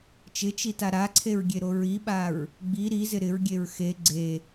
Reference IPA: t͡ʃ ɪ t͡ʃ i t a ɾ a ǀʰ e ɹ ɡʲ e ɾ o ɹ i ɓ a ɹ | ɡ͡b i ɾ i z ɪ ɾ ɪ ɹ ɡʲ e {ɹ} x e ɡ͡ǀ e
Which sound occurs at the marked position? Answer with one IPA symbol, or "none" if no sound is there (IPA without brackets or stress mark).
ɹ